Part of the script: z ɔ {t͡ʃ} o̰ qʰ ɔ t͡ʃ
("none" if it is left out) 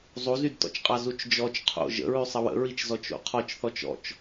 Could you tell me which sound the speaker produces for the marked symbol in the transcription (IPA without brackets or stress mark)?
t͡ʃ